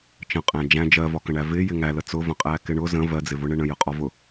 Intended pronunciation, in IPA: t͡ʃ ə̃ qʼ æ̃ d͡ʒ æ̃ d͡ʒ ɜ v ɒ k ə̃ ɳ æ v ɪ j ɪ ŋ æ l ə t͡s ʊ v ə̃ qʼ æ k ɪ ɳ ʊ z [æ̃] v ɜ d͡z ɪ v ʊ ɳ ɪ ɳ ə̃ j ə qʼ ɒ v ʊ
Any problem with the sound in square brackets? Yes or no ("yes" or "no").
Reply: yes